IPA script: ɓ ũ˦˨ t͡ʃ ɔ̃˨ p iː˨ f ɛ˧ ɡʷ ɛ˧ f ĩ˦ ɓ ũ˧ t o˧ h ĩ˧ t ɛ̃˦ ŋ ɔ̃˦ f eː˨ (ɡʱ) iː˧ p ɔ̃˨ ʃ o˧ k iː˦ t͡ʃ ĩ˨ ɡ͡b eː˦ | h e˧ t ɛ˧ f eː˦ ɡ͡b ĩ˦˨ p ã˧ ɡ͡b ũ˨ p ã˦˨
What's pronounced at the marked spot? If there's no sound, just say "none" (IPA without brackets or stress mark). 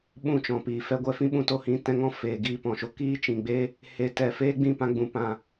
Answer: ɡ